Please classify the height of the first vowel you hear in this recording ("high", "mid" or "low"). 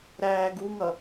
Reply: low